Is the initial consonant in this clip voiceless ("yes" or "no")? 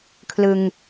yes